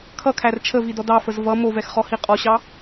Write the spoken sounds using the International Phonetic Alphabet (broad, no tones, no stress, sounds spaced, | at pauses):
kʰ ʌ kʰ æ r t͡ʃʰ ə v i d ɔ d ɑ f ə z v ʌ m o v ɛ x χ ɔ h i qʼ ɔ ɕ ɑ